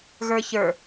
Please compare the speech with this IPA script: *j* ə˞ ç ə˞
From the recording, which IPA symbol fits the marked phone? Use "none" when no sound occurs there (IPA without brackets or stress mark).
ɣ